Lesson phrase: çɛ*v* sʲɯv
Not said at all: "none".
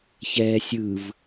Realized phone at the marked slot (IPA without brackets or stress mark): none